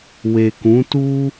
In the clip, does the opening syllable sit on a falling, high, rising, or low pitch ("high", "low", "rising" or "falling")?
low